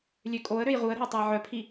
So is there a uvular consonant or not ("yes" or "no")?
yes